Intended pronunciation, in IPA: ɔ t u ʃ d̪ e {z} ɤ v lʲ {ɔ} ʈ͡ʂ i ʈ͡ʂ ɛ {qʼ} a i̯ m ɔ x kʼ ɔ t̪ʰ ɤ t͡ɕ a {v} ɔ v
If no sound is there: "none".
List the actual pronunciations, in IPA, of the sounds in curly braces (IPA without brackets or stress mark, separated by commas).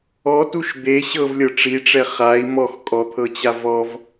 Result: ɕ, ɤ, χ, v